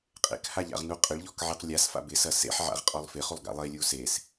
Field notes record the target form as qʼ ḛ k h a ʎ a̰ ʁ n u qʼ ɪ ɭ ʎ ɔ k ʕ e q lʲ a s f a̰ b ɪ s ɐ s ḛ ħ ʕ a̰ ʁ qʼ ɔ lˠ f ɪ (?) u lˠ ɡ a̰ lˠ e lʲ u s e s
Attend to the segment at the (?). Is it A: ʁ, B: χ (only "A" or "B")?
B